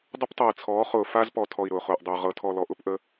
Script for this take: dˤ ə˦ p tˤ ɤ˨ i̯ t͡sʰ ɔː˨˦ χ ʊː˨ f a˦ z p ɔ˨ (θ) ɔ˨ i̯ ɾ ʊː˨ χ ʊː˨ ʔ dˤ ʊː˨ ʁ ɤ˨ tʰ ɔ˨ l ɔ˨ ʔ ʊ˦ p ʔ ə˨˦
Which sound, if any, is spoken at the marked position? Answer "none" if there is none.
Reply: tʰ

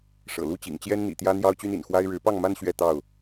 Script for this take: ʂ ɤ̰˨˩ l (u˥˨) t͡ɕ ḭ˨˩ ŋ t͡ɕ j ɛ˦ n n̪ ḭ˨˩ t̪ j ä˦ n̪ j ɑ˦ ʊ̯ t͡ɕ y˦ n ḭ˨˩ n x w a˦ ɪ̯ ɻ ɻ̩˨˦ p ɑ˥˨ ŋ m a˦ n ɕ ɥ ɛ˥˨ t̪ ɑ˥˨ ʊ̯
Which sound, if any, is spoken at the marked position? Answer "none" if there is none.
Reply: u˦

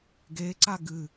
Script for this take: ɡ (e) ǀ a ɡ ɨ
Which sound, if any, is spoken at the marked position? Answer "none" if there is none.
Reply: e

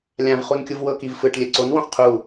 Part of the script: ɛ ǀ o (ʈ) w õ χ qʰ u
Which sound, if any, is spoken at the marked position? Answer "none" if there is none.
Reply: n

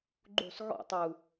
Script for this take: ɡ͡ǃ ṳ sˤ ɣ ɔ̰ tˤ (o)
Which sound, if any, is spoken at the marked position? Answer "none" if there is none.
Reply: u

